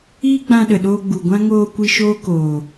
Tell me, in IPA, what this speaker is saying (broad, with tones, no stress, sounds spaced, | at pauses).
iː˦ ɡ͡b ã˧ ɗ ə˨ ɗ oː˧ ɡ͡b u˨ ɡʷ ã˦ ŋ oː˧ kʷ i˦ ʃ oː˦ k oː˨